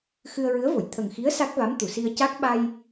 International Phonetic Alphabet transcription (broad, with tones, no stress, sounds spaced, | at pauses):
x ɨ˧ ə̯ ɹ ɨ˧˥ ə̯ v o˨˩˨ j t̪ʰ ə˨˩ ŋ x i˧˥ ə̯ s a˦˥ k̚ v a˧˥ m t̪ u˨˩˨ s i˧ ə̯ c a˦˥ k̚ ɓ a˧ j